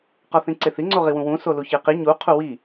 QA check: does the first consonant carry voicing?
no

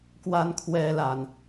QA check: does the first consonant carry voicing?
no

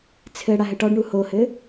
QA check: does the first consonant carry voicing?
no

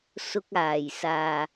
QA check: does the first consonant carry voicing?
no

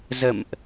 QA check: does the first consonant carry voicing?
yes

